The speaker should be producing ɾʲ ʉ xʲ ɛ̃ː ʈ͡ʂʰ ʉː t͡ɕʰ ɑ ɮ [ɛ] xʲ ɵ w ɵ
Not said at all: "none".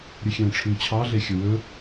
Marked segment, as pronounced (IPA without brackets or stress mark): e